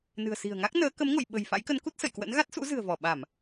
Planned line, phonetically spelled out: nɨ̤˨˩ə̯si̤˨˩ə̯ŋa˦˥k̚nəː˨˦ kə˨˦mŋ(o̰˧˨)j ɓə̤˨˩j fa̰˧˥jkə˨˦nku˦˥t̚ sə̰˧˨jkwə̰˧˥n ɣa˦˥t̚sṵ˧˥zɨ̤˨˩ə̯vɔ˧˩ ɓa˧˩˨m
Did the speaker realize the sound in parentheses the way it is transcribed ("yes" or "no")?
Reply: yes